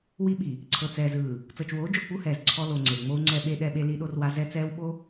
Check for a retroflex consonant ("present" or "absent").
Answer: absent